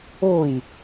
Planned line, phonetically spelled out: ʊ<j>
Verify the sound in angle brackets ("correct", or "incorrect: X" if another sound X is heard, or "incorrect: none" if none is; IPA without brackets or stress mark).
correct